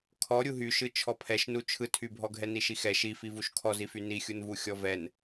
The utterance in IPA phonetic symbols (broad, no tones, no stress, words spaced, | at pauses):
kʰɔ ɾʲuɦyʃɯ t͡ʃʰɔpʰɛʃnu t͡ʃʰɯtʰybʱɔ ɡʱɛniʃixɛ ʃifi vuʃkʰɔzify nixʲunvu xʲɔvɛn